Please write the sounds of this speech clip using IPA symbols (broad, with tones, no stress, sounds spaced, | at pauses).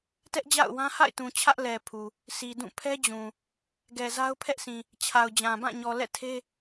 t ɛ˦ ʔ d͡ʑ a̰˦˨ ʊ̯ w ã˦ h a̰˦˨ ɪ̯ t ũ˨ t͡ɕʰ ä˦ ʔ l ɛ˨ pʰ u˨ | s i˨ d ũ˦˨ pʰ ɛ˦ d͡ʑ ũ˨ | ɡ ɛ˨ z a˦ ʊ̯ pʰ ɛ˦ ʔ s ĩ˨ | t͡ɕʰ a˨ ʊ̯ d͡ʑ ã˨ b ã˦˨ ɲ ɔ˨ l ɛ̰˦˨ tʰ e˦